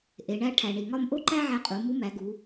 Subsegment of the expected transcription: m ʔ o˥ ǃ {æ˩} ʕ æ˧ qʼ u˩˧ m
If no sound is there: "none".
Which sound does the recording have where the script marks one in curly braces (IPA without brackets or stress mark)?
æ˥